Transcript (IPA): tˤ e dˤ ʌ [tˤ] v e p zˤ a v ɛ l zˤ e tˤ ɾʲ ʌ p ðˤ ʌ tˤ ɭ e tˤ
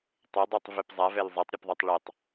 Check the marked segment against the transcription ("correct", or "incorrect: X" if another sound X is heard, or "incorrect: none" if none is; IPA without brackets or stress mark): correct